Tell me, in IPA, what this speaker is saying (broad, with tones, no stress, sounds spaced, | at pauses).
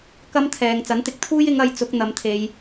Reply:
k ɐ˥ m t̪ʰ ɛː˨ ŋ t͡s ɐ˨˥ n t̪ ɪ˨ k̚ t̪ʰ uː˥ j ɪ˨˧ ŋ ɐ˨˧ j t͡s ʊ˨˥ k̚ n̪ ɐ˨˥ m t̪ʰ e˨˧ j